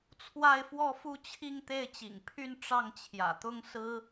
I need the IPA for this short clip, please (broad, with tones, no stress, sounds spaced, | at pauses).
t͡sʰ w a˥˧ ɪ̯ f w ɔ˥˧ f u˥˧ t͡ɕʰ i˥˧ ŋ t̪ e˥˩ ɪ̯ t͡ɕ ḭ˨˩ ŋ pʰ y˥˧ n ʈ͡ʂ ɑ˥˩ ŋ t͡ɕʰ j ä̰˨˩ t̪ ʊ˥ ŋ s ɹ̩˥